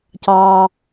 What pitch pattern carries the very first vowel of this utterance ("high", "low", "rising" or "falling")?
low